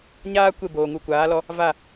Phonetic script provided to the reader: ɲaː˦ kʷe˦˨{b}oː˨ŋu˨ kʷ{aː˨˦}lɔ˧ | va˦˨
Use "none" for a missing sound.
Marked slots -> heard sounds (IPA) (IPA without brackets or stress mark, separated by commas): b, aː˨˦